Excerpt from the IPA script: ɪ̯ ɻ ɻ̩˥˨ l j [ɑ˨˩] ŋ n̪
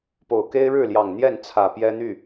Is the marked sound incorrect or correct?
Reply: correct